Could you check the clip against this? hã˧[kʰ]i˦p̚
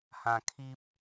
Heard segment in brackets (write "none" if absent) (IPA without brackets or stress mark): kʰ